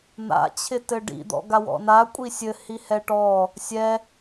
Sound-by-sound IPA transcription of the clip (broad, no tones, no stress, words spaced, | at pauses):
n̪a̰ t͡ɕʰɪtɘɖḭ d̪ɔ̰ɡawɔ̰na kʷʼisʲɘ hihɛʈɔ | sʲɛ